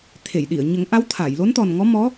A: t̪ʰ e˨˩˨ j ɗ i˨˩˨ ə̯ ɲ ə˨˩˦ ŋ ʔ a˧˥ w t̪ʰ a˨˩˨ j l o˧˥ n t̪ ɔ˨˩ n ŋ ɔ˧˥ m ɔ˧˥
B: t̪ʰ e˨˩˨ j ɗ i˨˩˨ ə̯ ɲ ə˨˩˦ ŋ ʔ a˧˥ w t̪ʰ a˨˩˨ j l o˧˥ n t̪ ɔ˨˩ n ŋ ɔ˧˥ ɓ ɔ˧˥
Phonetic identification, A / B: A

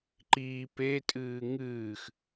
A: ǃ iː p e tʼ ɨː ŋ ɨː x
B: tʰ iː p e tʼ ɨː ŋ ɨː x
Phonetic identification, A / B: A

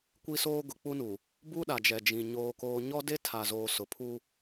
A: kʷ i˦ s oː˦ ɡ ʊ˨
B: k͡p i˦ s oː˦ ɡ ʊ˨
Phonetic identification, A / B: A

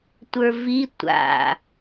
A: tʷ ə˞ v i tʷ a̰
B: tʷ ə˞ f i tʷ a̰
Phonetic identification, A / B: A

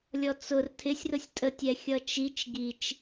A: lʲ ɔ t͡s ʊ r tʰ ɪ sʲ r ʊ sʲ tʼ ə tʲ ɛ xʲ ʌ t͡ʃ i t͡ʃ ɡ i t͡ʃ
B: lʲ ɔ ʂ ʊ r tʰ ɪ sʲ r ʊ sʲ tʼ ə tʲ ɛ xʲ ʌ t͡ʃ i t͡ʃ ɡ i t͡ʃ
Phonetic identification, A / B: A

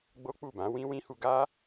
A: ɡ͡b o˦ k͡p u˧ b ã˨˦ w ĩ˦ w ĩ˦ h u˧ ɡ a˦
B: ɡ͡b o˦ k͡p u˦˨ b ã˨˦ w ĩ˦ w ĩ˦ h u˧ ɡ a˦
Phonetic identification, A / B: B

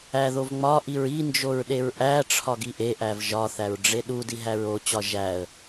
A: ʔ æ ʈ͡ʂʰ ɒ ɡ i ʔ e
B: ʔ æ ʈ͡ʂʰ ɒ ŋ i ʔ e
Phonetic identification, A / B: A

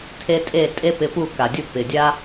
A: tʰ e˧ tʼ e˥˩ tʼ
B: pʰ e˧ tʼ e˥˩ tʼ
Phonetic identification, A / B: A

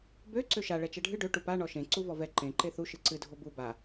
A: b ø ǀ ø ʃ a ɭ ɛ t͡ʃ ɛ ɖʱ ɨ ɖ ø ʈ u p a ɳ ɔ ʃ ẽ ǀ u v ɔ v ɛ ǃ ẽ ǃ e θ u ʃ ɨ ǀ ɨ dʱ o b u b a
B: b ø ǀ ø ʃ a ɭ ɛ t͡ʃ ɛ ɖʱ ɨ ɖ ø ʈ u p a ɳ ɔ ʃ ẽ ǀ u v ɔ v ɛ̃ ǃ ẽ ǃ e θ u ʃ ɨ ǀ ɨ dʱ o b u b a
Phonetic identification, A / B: A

